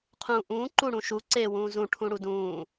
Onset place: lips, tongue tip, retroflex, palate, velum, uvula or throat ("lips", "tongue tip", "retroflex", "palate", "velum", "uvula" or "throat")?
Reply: uvula